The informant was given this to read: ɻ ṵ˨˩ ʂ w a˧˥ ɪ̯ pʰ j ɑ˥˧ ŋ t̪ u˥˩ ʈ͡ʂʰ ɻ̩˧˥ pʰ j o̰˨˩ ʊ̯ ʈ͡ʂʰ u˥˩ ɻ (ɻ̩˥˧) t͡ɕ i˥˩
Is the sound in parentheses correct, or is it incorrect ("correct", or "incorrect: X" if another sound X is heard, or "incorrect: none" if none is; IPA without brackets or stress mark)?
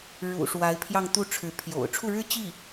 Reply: incorrect: ɻ̩˥